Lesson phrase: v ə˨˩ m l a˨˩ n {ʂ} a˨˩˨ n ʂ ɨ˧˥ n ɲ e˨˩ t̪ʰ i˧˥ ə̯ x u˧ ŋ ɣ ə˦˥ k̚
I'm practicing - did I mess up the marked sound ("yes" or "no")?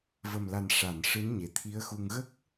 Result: no